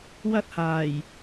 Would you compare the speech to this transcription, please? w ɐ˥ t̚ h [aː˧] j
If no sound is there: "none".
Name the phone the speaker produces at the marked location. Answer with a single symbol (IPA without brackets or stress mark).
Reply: aː˨˩